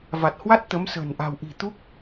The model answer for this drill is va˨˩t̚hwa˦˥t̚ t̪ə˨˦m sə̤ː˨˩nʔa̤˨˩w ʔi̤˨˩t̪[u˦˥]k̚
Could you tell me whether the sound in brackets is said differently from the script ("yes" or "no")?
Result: no